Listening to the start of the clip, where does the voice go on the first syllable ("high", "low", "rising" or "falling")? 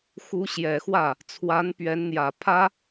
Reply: rising